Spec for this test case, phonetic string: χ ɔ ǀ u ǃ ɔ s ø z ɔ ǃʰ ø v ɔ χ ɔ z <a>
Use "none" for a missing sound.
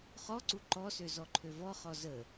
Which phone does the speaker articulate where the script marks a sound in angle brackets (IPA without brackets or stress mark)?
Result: ə